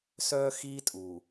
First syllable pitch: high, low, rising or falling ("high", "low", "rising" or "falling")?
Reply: high